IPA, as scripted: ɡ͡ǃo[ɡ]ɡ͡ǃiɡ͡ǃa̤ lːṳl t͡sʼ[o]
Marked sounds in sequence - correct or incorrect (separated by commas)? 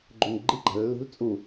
incorrect, incorrect